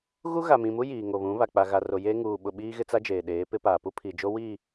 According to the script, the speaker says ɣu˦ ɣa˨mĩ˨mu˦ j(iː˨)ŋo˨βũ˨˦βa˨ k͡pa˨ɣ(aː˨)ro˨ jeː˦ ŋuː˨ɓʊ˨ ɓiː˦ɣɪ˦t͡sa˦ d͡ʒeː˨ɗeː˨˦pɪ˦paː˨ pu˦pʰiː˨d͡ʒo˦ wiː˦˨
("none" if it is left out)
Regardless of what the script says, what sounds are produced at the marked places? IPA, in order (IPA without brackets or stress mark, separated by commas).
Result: iː˨, a˨